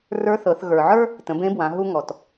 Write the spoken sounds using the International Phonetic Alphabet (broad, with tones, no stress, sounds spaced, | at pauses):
r ə˞˧˥ θ ɤ˩˧ θ ɣ ə˞˩ ʕ ə˞˥ | t ə̃˩˧ b ẽ˧˥ b w ã˩˧ ɦ u˧ ŋ ɔ˩ t